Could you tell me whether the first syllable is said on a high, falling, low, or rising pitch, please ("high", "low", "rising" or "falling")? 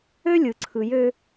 high